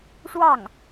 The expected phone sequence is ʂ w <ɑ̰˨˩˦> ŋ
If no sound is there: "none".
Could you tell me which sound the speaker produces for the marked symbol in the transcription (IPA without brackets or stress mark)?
ɑ˥˩